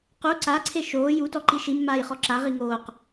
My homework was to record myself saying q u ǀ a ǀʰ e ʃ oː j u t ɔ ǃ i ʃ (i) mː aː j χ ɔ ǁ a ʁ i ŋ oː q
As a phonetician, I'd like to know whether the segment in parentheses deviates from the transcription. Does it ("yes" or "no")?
no